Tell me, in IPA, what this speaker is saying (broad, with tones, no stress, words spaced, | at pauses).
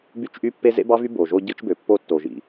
by˦t͡ʃʔy˦pːe˦ zḛ˦bɑ˦vy˦ bo˨ʒo˦ ɟɯ˦t͡ʃbø˨pːo˦ tːo˨ʒḭ˨